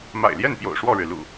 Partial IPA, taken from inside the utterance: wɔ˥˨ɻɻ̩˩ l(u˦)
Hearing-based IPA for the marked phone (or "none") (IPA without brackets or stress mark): ṵ˨˩